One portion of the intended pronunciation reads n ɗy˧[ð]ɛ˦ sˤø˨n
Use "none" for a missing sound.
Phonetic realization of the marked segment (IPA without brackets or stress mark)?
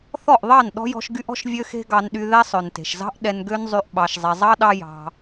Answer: ð